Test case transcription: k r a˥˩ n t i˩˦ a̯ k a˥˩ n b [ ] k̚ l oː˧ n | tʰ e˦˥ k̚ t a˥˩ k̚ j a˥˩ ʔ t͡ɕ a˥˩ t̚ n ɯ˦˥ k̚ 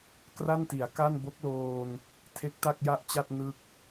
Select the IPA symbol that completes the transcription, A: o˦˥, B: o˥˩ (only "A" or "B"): A